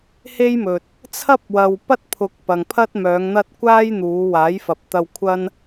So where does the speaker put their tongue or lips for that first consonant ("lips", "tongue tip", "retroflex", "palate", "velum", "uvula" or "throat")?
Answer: throat